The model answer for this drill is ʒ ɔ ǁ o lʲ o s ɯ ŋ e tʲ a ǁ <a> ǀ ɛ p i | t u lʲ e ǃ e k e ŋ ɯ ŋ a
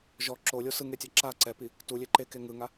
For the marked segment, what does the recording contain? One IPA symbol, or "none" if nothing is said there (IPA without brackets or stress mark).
a